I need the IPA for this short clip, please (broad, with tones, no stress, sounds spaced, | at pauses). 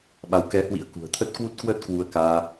ɓ a˨˦ w k ɛ˨˦ h w ḭ˧˥ ə̯ k ṳ˨˩ ə̯ t̪ʰ ə˦˥ t̚ k w u˦˥ t̚ k w əː˦˥ t̚ k w u˧ ə̯ k aː˧